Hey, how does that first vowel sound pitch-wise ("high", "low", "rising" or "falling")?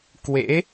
rising